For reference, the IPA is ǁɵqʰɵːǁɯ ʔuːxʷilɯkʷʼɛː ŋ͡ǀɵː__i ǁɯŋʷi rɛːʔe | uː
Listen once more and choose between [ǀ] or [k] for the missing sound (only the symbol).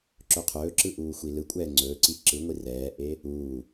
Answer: ǀ